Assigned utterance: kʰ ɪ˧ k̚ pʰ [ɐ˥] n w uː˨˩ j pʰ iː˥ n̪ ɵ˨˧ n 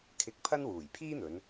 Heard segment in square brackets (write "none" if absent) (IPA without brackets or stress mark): ɐ˥